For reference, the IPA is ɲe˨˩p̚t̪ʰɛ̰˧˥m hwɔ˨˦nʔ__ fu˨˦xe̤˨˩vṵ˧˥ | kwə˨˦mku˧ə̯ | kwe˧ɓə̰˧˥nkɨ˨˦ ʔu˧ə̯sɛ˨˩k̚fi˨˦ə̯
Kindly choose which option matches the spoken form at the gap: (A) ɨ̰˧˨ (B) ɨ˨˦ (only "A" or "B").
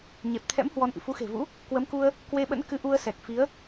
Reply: A